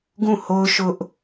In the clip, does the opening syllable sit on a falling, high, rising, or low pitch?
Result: falling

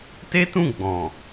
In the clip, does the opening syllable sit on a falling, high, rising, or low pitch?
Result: high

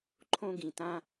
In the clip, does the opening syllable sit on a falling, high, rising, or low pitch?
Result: high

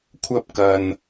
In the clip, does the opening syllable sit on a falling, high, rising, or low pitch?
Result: high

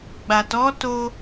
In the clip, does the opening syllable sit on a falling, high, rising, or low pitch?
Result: low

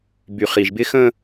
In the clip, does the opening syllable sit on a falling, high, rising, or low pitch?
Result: low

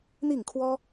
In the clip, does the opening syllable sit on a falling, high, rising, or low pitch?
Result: falling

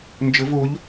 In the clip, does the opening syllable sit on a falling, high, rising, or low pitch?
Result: rising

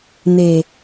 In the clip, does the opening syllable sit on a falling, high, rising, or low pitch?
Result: low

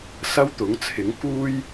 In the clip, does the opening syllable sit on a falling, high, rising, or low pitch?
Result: high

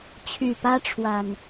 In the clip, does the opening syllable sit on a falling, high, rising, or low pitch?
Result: low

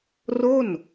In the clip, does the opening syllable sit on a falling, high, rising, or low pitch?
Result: falling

